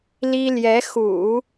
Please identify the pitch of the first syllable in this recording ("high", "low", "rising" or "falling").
high